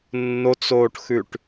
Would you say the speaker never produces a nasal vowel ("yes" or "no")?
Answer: yes